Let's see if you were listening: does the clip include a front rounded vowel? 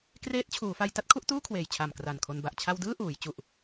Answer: no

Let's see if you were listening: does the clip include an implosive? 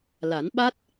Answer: yes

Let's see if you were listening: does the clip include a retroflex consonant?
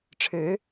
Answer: yes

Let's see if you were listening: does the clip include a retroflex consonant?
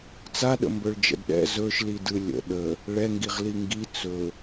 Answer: yes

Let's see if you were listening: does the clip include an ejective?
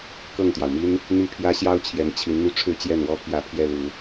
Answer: no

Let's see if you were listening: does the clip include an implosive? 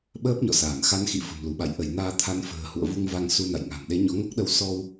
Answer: yes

